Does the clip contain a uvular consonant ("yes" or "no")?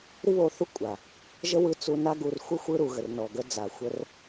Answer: no